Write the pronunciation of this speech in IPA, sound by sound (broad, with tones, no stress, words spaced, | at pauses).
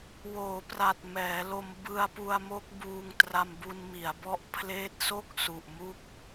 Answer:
woː˩˦ pra˨˩t̚mɛː˩˦lo˧m bɯ˧a̯pu˧a̯mo˦˥k̚buː˧ŋ tra˧mbu˧n mi˩˦a̯bɔ˦˥ʔpʰleː˦˥t̚ so˥˩k̚ su˨˩ʔmu˦˥k̚